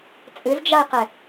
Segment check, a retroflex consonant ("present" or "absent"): absent